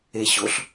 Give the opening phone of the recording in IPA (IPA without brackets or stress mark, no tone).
e